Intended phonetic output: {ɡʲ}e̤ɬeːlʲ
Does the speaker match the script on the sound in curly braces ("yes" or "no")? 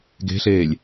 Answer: no